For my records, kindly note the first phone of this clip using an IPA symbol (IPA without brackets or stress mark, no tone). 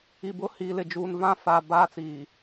i